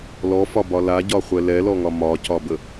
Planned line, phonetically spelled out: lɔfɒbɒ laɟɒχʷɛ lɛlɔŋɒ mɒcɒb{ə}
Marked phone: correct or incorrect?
correct